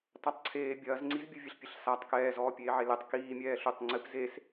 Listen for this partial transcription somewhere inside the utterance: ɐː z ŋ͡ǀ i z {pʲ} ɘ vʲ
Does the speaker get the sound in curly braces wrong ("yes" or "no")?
yes